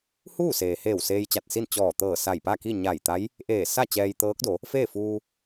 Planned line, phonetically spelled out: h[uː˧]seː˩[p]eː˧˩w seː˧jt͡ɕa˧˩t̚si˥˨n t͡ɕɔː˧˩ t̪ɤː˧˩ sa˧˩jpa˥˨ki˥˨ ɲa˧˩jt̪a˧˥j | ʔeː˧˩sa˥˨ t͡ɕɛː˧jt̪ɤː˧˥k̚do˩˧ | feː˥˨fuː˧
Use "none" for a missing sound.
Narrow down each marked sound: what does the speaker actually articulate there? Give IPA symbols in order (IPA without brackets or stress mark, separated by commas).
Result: uː˥˨, h